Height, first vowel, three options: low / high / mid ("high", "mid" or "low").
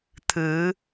high